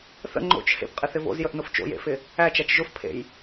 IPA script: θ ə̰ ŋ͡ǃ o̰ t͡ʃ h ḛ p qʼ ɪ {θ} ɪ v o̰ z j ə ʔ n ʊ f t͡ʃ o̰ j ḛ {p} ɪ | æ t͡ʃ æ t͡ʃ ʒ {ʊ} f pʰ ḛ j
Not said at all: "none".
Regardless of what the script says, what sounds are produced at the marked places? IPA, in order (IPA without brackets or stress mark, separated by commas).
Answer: θ, f, ʊ